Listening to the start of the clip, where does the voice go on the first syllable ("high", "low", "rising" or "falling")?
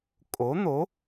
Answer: rising